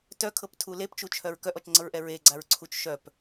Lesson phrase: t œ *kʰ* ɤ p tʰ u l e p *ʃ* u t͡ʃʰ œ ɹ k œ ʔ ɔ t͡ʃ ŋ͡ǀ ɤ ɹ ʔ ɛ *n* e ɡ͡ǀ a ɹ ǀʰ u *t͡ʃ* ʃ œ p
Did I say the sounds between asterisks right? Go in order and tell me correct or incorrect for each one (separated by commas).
correct, incorrect, incorrect, correct